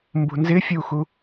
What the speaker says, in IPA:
m b ṳ n z ɪ fʲ u x u

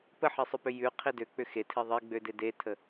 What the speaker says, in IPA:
p ə ħ i sˤ ʏ p ʏ j ʉ qʰ i d ø k͡p ʏ x e tʰ i ðˤ e ɡ͡b ø d e d e tʰ ə

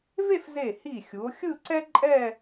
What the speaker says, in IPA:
v e˥˧ f z e˧˩ h i˧˩ xʲ u˩˧ o̯ xʲ ɯ˥˧ ǀ ɛ˥ ǃʼ ɛ˥˧

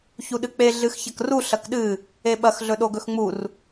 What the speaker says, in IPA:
ç u ɗ ɨ k͡p e ɮ ɨ x ç ɐ k r u ɬ ɐ k ɗ ɨ | e ɓ ɐ x ɮ ɵ ɗ o ɡ ɵ x ŋ͡m u r

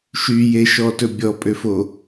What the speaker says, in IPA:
ʃ y j e ʃ ɔ t ɵ bʲ ɔ pʼ ø f o

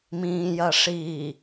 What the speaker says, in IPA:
m ĩː j ɐ ʂ iː

